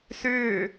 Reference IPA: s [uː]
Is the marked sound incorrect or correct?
incorrect